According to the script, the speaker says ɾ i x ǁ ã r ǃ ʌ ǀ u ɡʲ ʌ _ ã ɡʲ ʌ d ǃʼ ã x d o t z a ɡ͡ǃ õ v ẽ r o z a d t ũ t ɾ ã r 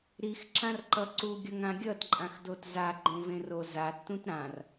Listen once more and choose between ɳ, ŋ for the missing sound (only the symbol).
ŋ